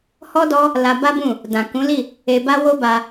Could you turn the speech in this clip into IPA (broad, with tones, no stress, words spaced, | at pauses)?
hɔ˦dɔ˦ | la˧ba˦bũ˦˨ | dã˨ kũ˨˦li˦˨ | e˧ba˦ wo˦ba˧